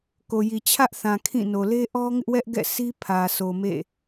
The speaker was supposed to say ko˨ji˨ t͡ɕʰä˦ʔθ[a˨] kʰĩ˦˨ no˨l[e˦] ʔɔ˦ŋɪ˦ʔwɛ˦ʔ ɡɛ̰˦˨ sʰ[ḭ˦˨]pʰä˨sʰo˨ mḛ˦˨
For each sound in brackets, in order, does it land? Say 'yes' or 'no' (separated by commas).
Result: no, yes, no